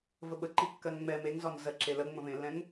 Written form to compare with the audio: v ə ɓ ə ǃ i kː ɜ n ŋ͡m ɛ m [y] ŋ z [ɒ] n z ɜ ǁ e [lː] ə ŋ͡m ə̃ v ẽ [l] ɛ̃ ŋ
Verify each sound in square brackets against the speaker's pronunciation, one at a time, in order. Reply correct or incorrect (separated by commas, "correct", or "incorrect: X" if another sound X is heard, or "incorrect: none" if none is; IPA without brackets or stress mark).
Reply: incorrect: e, correct, incorrect: l, incorrect: lː